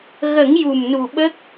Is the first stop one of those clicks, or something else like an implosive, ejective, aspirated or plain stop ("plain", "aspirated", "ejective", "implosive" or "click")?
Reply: implosive